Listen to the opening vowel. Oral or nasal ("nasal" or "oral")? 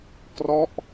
oral